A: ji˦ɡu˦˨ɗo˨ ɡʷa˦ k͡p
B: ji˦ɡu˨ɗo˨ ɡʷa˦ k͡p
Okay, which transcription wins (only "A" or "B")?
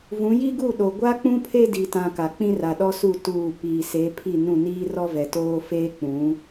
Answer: A